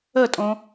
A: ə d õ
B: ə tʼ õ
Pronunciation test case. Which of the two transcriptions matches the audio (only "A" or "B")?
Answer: B